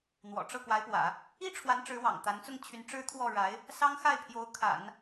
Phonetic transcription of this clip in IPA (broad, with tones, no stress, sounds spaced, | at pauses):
n̪ w ɔ̰˨˩ ʈ͡ʂ ɤ˥˩ k w a˧˥ ɪ̯ p w ä̰˨˩˦ | i˥ ʈ͡ʂʰ w a˧˥ n ʈ͡ʂ ɻ̩˧˥ w ɑ̰˨˩ ŋ t̪ a˧˥ n t͡s ʊ˥˩ ŋ t͡ɕʰ y˧˥ n ʈ͡ʂ ɻ̩˥ t̪ʰ w ɔ˥˩ ɻ a˧˥ ɪ̯ | s ɑ˥ ŋ x a˥˩ ɪ̯ pʰ j o˧˥ ʊ̯ kʰ a̰˨˩˦ n